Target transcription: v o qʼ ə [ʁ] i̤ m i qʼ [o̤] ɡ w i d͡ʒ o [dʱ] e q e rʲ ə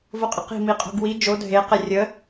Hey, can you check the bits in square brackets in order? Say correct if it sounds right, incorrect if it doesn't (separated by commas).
incorrect, correct, correct